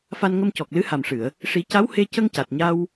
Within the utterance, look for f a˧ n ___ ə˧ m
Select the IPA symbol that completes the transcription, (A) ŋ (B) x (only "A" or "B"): A